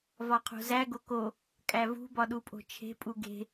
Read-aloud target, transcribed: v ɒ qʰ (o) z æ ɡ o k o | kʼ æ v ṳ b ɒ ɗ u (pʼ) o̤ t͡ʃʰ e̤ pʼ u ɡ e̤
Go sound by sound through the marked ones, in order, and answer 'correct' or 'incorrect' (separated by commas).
incorrect, correct